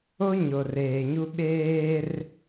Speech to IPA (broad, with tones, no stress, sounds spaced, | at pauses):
o˦ ɲ o˨ r eː˨ ɲ u˦ ɓ eː˦ r